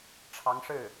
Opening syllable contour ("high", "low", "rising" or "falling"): rising